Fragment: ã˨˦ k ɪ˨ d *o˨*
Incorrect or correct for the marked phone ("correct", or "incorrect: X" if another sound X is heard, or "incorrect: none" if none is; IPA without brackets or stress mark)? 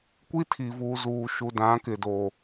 correct